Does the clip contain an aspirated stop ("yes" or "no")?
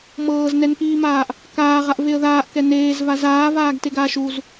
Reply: no